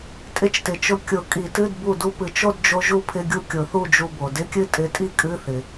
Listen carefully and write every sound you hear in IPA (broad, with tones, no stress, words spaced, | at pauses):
tʼɪ˧t͡ʃtɪ˩t͡ʃʊ˧˩ kʲʊ˨˩˦kʼi˨˩˦tɨ˧˥˧d bu˧˩du˧ pɨ˩t͡ʃo˥˧d d͡ʒo˧ ʒu˥˧pʰɪ˧˥˧ɡʲu˥˧ kʲʊ˨˩˦θu˥˧d͡ʒu˧bo˩ dɪ˧˥˧kʲɨ˥˧ tʼɪ˧tʼi˥˧ kʼɨ˧˥˧θɪ˩